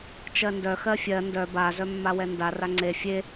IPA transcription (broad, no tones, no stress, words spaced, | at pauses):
t͡ʃɜndœ xɜfʲɜ ndœ ba zœmːawɛnda raŋ͡ǀe fʲe